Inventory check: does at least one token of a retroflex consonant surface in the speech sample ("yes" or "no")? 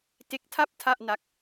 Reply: no